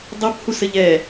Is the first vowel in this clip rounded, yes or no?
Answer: no